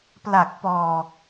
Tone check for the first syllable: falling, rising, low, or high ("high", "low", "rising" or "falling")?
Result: low